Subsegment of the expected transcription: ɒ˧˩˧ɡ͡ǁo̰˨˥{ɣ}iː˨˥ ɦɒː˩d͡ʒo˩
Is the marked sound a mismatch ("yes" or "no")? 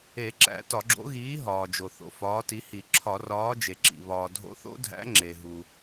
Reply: no